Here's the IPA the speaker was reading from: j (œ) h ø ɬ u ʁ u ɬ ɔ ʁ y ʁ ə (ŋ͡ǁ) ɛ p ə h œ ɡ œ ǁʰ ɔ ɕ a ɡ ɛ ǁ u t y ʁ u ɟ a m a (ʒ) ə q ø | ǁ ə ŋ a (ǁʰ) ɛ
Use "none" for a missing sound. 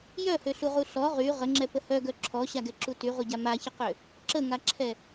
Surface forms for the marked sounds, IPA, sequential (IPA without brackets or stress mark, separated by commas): œ, ŋ͡ǁ, ç, ǁʰ